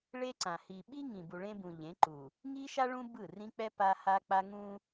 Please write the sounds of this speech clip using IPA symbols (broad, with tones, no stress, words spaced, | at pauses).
ɭe˦ǀã˨ hi˨ ɓi˦ŋĩ˨ bu˨ɭẽ˦bũ˨ ʎẽ˨˦ǃu˨ | ŋi˦ʃa˦ ɭũ˦ bɯ˦˨rĩ˦k͡pɛ˦ pa˦ ha˦k͡pa˦ ŋũ˦